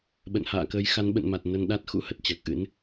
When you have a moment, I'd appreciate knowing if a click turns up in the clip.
no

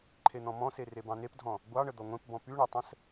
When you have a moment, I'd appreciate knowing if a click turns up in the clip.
yes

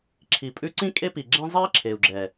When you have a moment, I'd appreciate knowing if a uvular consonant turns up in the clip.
no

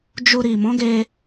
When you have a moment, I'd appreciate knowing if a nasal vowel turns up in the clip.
yes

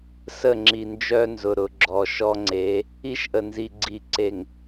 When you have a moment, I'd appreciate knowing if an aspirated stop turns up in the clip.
no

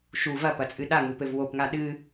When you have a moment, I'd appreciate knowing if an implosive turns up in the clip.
yes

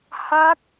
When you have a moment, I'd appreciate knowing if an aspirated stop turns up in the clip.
no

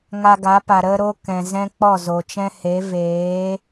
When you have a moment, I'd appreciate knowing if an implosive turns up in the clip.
no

